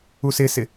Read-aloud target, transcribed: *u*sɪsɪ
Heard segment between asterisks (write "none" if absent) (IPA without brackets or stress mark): u